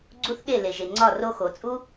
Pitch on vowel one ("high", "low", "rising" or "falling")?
high